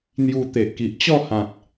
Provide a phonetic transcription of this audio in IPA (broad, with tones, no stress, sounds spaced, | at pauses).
n̪ j u˧ t̪ e˨ ʔ k i˨ ʔ t͡ɕ ɔ˥˧ h ã˨ t̚